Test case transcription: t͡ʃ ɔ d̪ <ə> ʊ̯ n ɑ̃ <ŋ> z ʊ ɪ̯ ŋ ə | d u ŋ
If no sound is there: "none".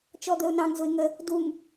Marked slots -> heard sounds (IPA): ə, ŋ

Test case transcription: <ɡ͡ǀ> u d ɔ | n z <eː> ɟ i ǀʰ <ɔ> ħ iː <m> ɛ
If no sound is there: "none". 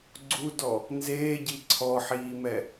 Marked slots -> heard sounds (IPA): ɡ͡ǀ, eː, ɔ, m

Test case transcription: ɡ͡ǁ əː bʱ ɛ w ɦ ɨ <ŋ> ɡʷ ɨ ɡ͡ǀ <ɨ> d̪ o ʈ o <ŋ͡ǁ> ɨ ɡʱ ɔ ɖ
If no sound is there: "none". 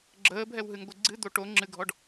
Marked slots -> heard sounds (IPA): ŋ, ɨ, ŋ͡ǁ

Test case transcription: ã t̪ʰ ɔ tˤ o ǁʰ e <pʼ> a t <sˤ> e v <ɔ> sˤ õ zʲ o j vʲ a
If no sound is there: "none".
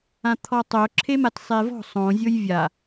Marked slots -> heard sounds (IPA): m, sˤ, ɔ̤

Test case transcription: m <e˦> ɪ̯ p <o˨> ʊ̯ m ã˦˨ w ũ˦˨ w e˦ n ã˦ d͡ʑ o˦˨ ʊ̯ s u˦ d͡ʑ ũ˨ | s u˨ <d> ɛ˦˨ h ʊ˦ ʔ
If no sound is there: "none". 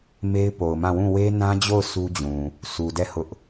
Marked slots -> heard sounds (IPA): e˦, o˨, d

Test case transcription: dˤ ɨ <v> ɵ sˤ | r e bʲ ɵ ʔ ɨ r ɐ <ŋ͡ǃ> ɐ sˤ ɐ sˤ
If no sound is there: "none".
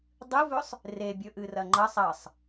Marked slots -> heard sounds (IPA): v, ŋ͡ǃ

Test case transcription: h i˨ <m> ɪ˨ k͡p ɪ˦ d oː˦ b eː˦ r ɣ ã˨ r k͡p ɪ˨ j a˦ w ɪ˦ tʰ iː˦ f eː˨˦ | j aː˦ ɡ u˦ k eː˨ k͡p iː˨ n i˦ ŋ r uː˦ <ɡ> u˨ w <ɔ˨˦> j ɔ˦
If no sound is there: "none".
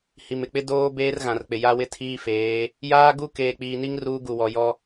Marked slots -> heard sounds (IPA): m, ɡ, ɔ˨

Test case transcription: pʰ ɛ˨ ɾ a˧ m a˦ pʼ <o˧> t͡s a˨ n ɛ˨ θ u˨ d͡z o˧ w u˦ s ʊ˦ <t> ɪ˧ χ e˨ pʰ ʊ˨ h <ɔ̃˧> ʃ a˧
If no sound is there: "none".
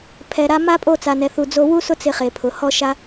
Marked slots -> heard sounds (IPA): o˦˨, t͡s, ɔ˧

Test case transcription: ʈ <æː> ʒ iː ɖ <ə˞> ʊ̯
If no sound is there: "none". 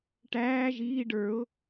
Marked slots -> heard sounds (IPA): æː, ə˞

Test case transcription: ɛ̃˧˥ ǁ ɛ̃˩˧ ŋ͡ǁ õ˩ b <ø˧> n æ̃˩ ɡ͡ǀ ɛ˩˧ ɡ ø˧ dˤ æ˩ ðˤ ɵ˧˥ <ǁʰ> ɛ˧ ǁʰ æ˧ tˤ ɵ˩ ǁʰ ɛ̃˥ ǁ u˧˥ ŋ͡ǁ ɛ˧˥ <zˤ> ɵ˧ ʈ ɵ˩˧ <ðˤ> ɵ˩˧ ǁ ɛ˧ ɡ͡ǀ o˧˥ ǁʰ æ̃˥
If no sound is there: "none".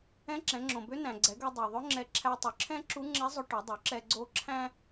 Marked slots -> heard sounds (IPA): ø˧˥, ŋ͡ǁ, zˤ, dˤ

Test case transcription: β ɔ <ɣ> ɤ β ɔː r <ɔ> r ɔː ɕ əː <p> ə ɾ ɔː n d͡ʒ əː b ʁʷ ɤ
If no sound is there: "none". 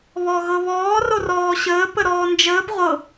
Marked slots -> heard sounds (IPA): ɣ, o, p

